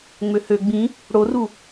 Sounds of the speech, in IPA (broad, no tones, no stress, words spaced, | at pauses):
ŋ͡møhø ɡ͡bĩ | ɽoru